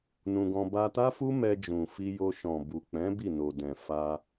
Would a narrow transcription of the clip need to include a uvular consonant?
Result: no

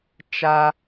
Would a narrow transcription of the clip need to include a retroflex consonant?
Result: no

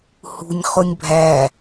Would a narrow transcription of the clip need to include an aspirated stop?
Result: no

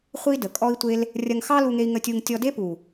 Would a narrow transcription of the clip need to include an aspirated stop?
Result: no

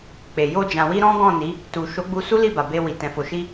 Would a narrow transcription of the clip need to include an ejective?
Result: no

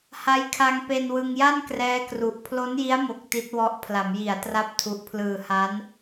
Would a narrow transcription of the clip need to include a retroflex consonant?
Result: no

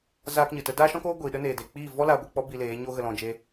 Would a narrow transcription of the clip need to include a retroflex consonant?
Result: no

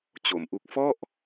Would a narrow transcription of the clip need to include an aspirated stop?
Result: no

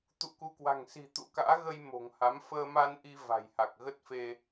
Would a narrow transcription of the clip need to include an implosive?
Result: no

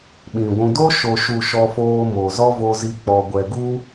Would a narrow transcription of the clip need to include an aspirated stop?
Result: no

